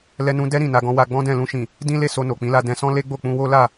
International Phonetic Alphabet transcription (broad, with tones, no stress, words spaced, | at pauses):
lɛ˦nũ˦ dɛ˦ ɾĩ˦˨na˧ ɡɔ̃˧wa˧ɡ͡bɔ̃˦dɛ̃˦˨ lũ˧ʃĩ˨ | dĩ˦le˦˨ so˧no˨k͡pĩ˨˦la˧ dɛ̃˧sɔ̃˦le˦ɡ͡bo˦˨ k͡pũ˧wo˦la˦˨